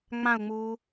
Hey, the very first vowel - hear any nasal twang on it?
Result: yes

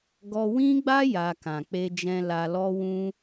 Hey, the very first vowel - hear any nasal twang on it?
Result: no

